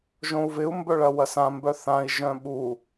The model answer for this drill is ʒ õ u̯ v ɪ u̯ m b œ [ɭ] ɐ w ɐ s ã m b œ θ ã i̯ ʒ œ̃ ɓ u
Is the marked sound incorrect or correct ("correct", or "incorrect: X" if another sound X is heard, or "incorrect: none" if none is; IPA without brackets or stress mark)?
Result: correct